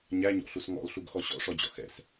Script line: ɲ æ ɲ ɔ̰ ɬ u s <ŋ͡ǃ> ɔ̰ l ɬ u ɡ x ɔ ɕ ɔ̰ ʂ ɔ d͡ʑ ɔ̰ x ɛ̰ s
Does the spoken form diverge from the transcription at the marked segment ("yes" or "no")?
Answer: yes